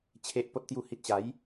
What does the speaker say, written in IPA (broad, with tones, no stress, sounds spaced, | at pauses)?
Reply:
t͡ɕʰ e˨ ʔ p o˨ t̚ t̪ j u˨˩ h i˨ t̚ ɕ a˨˦ j